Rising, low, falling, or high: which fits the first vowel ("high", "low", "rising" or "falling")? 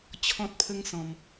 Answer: high